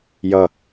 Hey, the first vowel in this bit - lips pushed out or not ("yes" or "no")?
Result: no